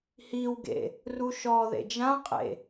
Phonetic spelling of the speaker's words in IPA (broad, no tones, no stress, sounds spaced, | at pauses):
h i w ɡ ḛ | r u ʃ ɔ ð ḛ d͡ʒ ã qʼ ḛ